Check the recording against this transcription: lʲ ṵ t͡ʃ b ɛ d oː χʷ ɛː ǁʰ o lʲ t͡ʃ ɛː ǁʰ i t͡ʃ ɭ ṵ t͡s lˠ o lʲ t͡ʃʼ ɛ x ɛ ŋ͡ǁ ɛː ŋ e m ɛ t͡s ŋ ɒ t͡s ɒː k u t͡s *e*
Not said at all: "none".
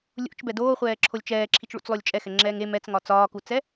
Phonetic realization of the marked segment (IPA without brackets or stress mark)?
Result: ɛ